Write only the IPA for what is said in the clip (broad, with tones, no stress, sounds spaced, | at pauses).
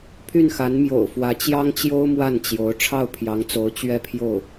pʰ y˥˩ n x a˧˥ n m j o̰˨˩ ʊ̯ f w ä˧˥ t͡ɕ j ɑ˥ ŋ t͡ɕ j o˥ ʊ̯ m w a˥˩ n t͡ɕ j o˧˥ ʊ̯ ʈ͡ʂʰ ɑ˥˩ ʊ̯ pʰ j ɑ˧˥ ŋ t͡s o˧˥ ʊ̯ t͡ɕ ɥ ɛ˥˧ pʰ j o˥˩ ʊ̯